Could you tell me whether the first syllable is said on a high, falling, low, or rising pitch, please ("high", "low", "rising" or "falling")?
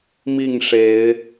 falling